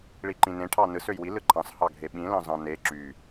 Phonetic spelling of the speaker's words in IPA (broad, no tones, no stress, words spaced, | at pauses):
ɭiǃĩnẽ ʈʰɑnɯs øjwi lɯǃʰɑ̃s hɑɡʱeɓĩ lɑ̃zɑ̃ne ǁy